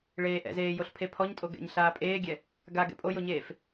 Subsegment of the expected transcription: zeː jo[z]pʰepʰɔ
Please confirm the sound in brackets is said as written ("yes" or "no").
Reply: no